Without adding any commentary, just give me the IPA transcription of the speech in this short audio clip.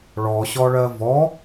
ɭ ɔ ɕ ɔ ɭ ɜ v ɔ

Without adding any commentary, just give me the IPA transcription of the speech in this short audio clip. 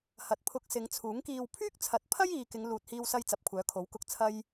h ɐ˨ t̚ pʰ ʊ˧ k̚ s ɪ˨˧ ŋ t͡sʰ uː˨˥ ŋ k iː˨ w pʰ yː˥ k̚ t͡sʰ ɐ˨˥ t̚ pʰ ɐ˥ j iː˨ k ɪ˨˧ ŋ l uː˨ t̚ h iː˧ w s ɐ˧ j t͡s ɐ˨ p̚ kʷʰ œː˨˥ kʰ o˨˥ w k ʊ˧ k̚ t͡sʰ ɐ˧ j

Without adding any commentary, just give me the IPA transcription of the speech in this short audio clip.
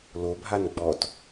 l o bʱ a n ɡ͡b ɔ t

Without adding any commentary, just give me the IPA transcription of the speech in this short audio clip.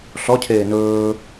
ɬ ɔ cʰ eː n ɵː

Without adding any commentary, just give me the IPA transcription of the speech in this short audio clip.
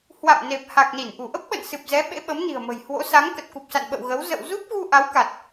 h w a̰˧˨ m n e˨˩ p̚ h a˨˩ k̚ n i˧˩ n ʔ u˧˩ ʔ ə˦˥ p̚ ɓ ə̰˧˨ n s ɨ˨˩ p̚ z ɛ˨˦ ɓ ḛ˧˥ ɓ ə˨˦ m n i̤˨˩ ə̯ m ə̤˨˩ j h w o̰˧˥ s a˨˦ ŋ k ə˨˩ t̚ k u˨˩ p̚ s a̰˧˨ n ɓ ə̰˧˨ w ɣ ə˨˦ w z ə̰˧˨ w z u˦˥ p̚ ɣ u˧ ʔ a˨˦ w k a˨˩ t̚

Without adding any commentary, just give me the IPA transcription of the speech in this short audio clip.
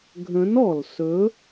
ɡʱ ə̃˨˥ n ɔ˩ l s ɵ˨˥

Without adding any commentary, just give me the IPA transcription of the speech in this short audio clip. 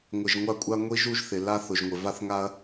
ŋʷ ɪ˨ ʒ ŋʷ a˦ kʷʼ a˦ ŋʷ i˦ ʒ u˦ ʒ θ ɪ˨ l a˦ θ ʊ˨ ʒ ŋʷ ɪ˨ v a˦ θ ŋ a˦ ɐ̯

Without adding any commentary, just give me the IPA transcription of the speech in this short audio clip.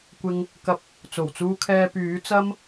kʷ ɪ˧ ŋ | k ɐ˧ p̚ | t͡s o˨˩ w t͡s uː˧ kʰ ɛː˧ p yː˨˥ t͡s ɐ˥ m

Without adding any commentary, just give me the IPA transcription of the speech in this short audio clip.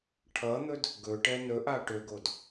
ʈʰ ʌ n̪ ɵ d | ɡ ɵ ʈ ɛ n ɵ ʔ a ʈ ø ɡ o d

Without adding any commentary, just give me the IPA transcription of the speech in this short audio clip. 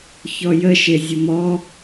ç ɔ j ə ʃ e zʲ ʊ m ɔ

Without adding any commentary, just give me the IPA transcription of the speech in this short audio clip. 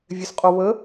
vʲ ɛ s qʼ o β ə

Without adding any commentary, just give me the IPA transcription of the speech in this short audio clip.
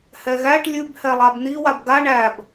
h ɛ ɣ æ ʈ lʲ ʉ b h ɛ lˠ a b n̪ i w a b ɡ a ɳ æ b

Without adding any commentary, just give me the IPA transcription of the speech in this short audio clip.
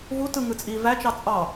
v u t ɯ ŋ ɯ t͡sʼ iː v æ t͡ʃ ɑ t͡sʼ ɑ

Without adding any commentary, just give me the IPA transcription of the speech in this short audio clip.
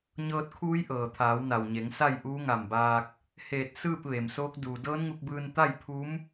ɲ ɤː˧ t̚ kʰ uː˧˥ j ʔ ɤː˩ t̪ʰ aː˩˧ w n a˩ w ɲ e˩˧ ŋ s a˥˨ j ʔ uː˧˥ ŋ a˧˩ m b aː˧ k̚ | h eː˧˩ t̚ s ɯː˥˨ p̚ ʋ e˩ m s oː˧˥ k̚ d uː˩ d ɤː˧˥ n ŋ u˧ k̚ b ɯː˧ n t̪ a˥˨ j pʰ u˧˥ m

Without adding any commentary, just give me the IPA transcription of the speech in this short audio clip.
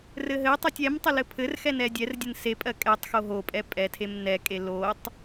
r ɘ ɦ ɘ tˤ ɜ tʲ ɛ m tˤ ɘ l ɘ pʰ ɘ r x ɛ n ɛ dʲ ɛ r dʲ ɘ n s e pʼ ɜ kʼ ɛ tˤ x o ɦ o pʼ ɛ pʼ ɛ tʰ e m n ɛ kʼ e l o tˤ

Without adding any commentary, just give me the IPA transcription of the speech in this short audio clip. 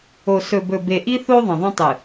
o˨ s ɵ˨ b ɵ˨ b e˨ ʔ i˦ θ o˦ ðˤ ɐ̃˨ ðˤ ɐ̃˦ tˤ ɨ˨

